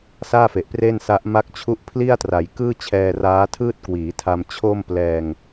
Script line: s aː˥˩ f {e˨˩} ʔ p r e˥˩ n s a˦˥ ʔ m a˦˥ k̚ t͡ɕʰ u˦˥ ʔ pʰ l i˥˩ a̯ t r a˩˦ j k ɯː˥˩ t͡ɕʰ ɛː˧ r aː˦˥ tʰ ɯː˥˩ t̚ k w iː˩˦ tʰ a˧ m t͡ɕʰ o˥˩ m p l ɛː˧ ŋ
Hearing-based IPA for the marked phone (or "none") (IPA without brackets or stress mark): e˨˩